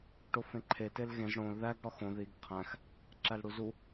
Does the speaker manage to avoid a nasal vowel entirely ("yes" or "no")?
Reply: no